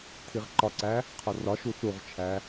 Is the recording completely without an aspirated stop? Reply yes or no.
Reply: no